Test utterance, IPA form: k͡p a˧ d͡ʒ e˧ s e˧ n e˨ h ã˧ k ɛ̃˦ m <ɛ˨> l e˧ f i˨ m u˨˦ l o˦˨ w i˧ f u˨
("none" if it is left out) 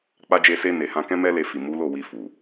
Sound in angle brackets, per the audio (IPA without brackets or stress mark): ɛ˦